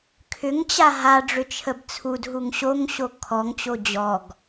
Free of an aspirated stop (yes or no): no